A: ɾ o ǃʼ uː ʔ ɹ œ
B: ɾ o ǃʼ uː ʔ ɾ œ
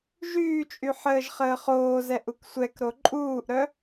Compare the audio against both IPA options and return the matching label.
B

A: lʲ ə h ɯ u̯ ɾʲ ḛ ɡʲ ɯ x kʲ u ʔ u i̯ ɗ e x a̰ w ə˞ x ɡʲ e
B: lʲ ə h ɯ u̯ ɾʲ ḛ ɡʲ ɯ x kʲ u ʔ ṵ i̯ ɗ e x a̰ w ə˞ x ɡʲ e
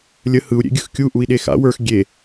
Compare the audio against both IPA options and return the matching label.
A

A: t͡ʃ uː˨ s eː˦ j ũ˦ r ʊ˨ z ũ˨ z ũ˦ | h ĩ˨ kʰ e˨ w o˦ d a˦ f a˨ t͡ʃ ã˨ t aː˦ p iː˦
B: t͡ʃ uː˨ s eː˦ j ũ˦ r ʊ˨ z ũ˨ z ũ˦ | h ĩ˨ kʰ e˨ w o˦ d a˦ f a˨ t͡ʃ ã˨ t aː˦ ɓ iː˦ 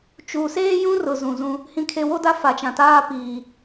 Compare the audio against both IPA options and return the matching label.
A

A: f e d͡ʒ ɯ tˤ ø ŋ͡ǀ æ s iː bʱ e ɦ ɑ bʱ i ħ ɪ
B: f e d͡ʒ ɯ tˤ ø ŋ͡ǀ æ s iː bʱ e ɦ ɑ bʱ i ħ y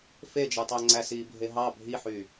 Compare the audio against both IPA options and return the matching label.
B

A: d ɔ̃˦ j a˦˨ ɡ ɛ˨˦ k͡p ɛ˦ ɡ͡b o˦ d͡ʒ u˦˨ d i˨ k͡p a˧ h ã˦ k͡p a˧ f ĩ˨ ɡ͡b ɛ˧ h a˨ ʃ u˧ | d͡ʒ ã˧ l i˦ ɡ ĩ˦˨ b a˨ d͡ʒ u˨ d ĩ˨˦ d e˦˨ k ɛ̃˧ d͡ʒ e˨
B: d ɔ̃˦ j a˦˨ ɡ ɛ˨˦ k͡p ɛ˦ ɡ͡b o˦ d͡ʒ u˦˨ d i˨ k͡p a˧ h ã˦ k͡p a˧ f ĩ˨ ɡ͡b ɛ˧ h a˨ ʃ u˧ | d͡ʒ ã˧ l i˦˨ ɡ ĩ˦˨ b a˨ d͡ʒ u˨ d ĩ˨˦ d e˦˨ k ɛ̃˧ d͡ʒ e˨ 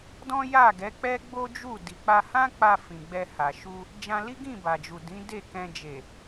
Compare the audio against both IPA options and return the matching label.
A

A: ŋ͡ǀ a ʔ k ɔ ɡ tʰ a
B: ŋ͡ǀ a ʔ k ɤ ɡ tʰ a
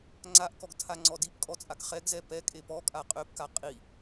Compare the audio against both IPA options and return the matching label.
A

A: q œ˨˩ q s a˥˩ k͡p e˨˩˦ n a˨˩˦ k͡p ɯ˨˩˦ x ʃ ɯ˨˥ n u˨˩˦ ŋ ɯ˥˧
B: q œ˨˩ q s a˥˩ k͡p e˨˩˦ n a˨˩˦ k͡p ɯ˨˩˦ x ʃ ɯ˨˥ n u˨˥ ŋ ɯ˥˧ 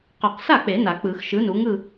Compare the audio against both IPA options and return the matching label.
B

